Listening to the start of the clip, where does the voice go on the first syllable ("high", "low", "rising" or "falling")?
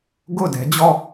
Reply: falling